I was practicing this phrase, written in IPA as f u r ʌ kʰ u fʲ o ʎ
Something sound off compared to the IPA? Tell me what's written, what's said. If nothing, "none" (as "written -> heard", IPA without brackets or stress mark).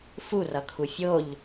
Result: none